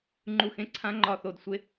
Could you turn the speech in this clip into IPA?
ŋ͡ǃu˦˨xẽ˥ ǀʰã˥ŋ͡ǃɒ˦˨θo˦˨d sʷe˥

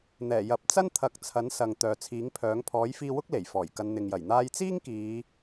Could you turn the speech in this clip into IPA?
n̪ɛː˨˩ jɐ˨˥p̚ t͡sɐ˥nt̪ʰɐ˨˥k̚t͡sʰɐ˨˥n sɐ˨ŋ t̪œː˨t͡sʰiː˨˥ŋpʰœː˨˥ŋ pʰɔː˨˥jfiː˧wʊ˥k̚ le˨˩jfɔː˨˩j kɐ˨˧nn̪ɪ˨ŋjɐ˨˩j n̪aː˧jt͡siː˥ŋkiː˨˧

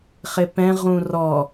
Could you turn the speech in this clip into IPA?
χɪpɛ̃ʁũ rɔ

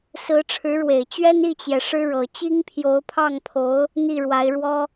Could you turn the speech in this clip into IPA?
sɹ̩˧˥ʈ͡ʂʰɻ̩˧˥ɻwe˨˩ɪ̯t͡ɕɥɛ˥n i˥˩t͡ɕjɛ˩ ʂɻ̩˥ɻɤ˨˩ t͡ɕi˥ŋpʰjo˧˥ʊ̯pʰɑ˥˩ŋpʰo˧˥ʊ̯ | n̪i˥˩ɻwa˧˥ɪ̯ɻwɔ˥

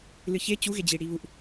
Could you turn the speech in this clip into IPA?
lɨçe t͡ɕuɣed͡ʑi ɽiβuʔ

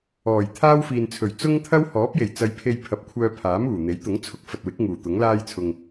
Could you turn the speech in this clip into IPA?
ɔː˨˩jt̪ʰaː˥w fiː˨nt͡sʰɵ˨˩ɥ t͡sʊ˥ŋt̪ʰɐ˥w hɔː˨˥p̚je˨˩j t͡sɐ˧jpʰe˧j pʰɐ˨p̚kʷʰœː˧ pʰaː˨˥muː˨˩n̪e˨˥j t̪ʊ˨˥ŋt͡sʰʊ˧k̚fɐ˨t̚wɪ˨˥k̚ ŋuː˨˩t̪ʊ˨˥ŋlaː˥jt͡sʰʊ˧ŋ

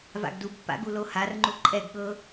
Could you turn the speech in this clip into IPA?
va̰ɡdubpːa̰ ɡuloharŋ͡ǃu ǃʼɛɡ ɠɤ

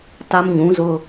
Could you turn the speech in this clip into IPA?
ta˦mɲũ˨˦zʊ˦

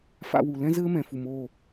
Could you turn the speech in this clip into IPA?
fa̰˦wu˧ lɛ̃˦zɘː˦mɛ̃˨fu˨m o˦˨

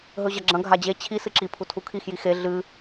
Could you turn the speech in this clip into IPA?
ɦɵʑɐɡ͡ǁɐ̃ ɡʱad͡ʑe t͡ɕʰi sɨǁipʰu tʰukʰixji xe ɮɨ

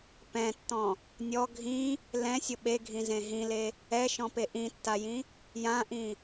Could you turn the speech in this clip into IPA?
pɛ̃tːɔ̃ | nʲɔ ɡʱĩ | lɛ̃sʲʊ ɓeɡʱĩzẽ ɦĩle | ɛʃɔ̃pe ʔĩtːajĩ | jãʔĩ

